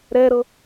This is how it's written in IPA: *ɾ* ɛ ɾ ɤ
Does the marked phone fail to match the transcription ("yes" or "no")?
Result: no